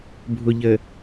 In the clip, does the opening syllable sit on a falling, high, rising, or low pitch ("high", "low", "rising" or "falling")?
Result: low